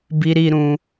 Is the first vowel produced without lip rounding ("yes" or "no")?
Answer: yes